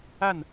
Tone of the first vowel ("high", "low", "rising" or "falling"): falling